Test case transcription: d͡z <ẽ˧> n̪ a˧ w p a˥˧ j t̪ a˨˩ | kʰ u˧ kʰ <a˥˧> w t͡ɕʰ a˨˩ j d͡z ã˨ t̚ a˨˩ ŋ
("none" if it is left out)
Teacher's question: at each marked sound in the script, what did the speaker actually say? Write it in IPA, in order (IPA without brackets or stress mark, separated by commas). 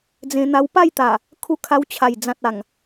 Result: ẽ˧, a˧